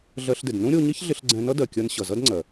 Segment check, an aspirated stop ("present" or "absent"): absent